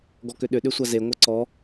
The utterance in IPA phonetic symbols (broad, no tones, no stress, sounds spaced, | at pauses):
ɡ ɔ k ʏ ɗ ʏ ɗ ʏ sʷ a z e ŋʷ ɤ ǀ ɔ